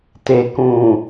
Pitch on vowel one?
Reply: low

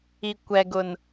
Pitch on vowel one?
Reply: low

